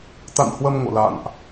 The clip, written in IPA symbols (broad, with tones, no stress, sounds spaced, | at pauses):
t̪ a̰˧˨ n h w ə˧ m ŋ o̰˧˨ l a̰˧˨ n ʔ